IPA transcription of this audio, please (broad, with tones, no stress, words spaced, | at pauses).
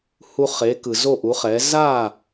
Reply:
hu˧χe˩˥kɯ˩ zo˥˩ʔu˩˥χɛ˩˥ za˥˩